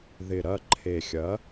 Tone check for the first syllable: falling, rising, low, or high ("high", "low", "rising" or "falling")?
low